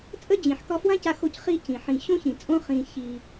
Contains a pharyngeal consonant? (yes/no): yes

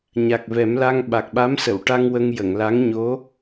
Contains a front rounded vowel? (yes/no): no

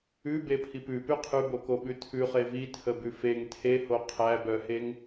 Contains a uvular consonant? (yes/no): yes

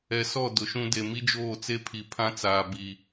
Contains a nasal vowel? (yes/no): yes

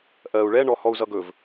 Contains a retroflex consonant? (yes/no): yes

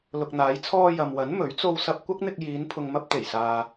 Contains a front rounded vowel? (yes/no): no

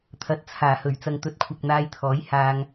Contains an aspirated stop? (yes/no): yes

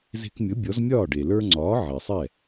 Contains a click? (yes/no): yes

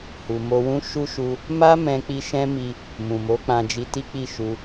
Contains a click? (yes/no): no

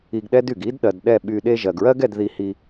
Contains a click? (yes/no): no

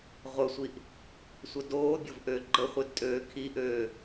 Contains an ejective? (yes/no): yes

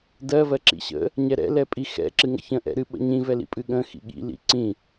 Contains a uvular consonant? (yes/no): no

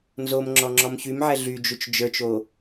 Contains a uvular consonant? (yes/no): no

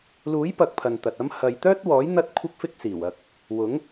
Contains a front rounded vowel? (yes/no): yes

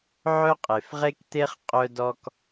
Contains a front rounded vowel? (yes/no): yes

